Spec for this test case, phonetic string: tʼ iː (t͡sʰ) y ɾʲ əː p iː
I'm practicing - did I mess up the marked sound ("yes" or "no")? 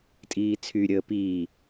no